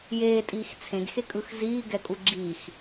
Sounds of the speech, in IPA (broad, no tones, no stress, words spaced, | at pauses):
jeːtʼiːx t͡sʰẽɡxe kʼɯxziːɡɛ kʼuɡ͡ǁiːx